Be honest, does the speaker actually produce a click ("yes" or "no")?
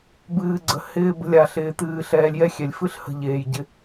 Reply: yes